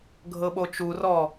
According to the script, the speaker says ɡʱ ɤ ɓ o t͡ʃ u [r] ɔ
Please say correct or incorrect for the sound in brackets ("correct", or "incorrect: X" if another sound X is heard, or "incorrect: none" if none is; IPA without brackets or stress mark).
correct